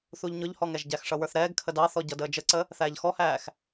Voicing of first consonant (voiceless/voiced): voiceless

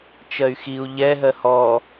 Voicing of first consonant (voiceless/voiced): voiceless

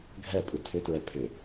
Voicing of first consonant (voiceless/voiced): voiced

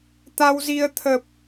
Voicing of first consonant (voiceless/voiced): voiceless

